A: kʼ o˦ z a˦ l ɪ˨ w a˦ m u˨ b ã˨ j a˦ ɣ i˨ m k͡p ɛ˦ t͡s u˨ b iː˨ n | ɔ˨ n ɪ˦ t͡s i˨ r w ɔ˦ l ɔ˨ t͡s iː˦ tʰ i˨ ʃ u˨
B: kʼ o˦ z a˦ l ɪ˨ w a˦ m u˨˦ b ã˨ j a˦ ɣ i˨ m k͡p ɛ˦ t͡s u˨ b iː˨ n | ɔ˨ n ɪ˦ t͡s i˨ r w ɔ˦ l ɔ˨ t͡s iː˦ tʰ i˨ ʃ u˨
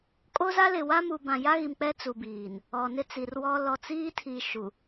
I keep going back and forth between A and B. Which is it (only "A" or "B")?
A